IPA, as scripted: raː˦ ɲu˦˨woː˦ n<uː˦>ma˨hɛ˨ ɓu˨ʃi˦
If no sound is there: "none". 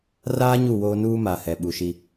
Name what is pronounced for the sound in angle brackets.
uː˦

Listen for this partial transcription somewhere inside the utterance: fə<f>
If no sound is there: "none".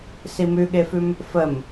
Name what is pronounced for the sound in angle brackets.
m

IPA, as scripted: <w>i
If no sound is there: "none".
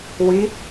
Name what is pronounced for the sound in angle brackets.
w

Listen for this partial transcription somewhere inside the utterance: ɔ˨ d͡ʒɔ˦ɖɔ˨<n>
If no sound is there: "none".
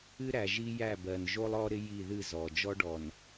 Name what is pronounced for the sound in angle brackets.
n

